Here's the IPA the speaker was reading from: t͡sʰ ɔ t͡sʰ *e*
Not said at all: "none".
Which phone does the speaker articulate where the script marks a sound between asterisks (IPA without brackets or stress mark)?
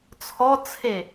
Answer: e